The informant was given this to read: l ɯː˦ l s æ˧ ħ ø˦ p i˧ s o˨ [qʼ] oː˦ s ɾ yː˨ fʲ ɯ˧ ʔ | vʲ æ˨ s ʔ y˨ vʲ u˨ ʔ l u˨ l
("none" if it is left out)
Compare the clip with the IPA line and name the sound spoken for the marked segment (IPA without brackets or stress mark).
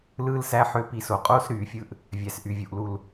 qʼ